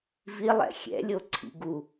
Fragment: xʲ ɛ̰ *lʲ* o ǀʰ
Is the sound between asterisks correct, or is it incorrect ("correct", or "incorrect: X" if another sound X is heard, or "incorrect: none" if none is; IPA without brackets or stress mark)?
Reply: correct